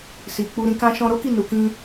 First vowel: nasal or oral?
oral